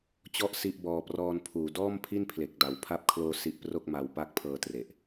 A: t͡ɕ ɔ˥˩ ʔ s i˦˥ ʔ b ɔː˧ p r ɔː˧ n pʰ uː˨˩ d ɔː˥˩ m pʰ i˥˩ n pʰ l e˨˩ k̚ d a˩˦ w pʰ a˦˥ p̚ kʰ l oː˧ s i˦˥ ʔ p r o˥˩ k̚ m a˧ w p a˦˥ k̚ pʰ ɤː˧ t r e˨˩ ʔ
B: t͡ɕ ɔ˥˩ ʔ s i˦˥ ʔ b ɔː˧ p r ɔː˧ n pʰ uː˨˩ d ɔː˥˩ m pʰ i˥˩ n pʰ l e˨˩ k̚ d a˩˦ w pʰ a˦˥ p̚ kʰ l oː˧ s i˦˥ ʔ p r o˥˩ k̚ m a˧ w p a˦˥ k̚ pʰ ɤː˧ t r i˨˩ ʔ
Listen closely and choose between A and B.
A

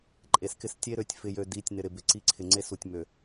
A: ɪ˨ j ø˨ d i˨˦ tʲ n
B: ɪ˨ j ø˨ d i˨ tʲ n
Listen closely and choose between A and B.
A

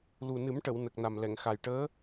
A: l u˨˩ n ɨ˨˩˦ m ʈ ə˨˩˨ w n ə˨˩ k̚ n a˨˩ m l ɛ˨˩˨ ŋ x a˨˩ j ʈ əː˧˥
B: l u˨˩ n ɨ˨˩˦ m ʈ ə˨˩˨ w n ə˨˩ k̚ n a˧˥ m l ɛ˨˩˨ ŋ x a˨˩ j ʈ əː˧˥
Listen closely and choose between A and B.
A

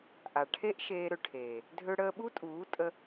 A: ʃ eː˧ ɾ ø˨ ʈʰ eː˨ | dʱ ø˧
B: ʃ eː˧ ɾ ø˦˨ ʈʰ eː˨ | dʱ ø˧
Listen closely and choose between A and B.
A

